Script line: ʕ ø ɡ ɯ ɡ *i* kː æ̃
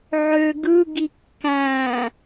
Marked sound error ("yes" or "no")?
no